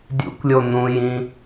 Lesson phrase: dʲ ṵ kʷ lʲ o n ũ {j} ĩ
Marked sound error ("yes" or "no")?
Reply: no